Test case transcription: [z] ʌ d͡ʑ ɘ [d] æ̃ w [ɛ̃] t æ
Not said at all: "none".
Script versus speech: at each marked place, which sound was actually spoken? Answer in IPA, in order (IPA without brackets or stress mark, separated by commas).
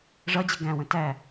ʐ, ɡ, ə̃